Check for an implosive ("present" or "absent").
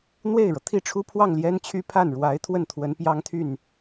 absent